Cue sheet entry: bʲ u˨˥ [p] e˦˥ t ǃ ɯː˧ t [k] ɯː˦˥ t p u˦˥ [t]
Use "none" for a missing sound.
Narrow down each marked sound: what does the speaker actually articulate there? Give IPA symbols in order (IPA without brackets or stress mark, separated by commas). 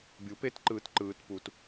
p, ǃ, t